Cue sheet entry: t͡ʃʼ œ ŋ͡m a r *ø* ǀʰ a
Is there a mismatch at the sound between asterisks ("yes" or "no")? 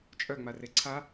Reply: yes